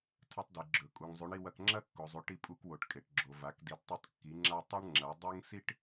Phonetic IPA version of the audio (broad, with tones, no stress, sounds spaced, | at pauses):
tʰ ɐ˧ tˤ d i˩ ɡ͡ǁ ɵ˩ kʼ u˩ ŋ zˤ ʉ˩˧ ɳ i˧ w ɐ˧ k ŋ͡ǁ ɐ˥ kː o˩ zˤ ʉ˩˧ ʈ i˧ pʼ u˧ k w o˩ ʈ kʼ e˩ ʈ ɡ͡ǁ o˩ v a˩˧ k d i˩˧ d tˤ ɵ˧ tˤ kː i˩˧ ŋ͡ǁ a˧ tˤ ɐ˥ ɳ ŋ͡ǁ ɐ˩˧ dˤ u˥ ŋ s i˥ ʈ